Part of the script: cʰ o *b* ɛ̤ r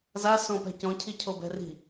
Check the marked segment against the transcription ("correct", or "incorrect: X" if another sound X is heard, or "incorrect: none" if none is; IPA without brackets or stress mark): correct